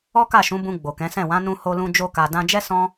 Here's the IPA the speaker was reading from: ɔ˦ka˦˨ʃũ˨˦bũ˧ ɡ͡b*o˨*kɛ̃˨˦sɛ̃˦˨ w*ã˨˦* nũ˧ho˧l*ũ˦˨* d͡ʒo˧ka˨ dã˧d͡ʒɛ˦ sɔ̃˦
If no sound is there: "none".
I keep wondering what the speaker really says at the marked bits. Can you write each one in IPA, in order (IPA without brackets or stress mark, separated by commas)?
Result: o˨, ã˨˦, ũ˧